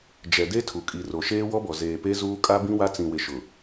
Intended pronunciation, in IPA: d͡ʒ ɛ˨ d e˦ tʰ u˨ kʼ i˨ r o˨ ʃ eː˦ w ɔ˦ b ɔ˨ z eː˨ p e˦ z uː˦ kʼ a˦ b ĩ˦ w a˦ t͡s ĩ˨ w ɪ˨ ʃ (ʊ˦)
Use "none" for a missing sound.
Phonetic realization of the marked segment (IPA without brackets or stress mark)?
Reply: ʊ˨